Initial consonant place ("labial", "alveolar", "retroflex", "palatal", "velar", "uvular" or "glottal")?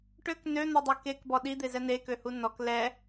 retroflex